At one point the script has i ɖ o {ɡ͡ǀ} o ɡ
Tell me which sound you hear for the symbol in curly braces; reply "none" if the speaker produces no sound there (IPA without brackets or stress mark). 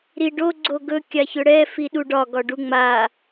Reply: ɡ͡ǀ